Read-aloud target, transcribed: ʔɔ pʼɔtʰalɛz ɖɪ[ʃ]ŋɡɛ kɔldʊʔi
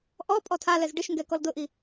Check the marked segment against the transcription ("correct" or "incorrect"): correct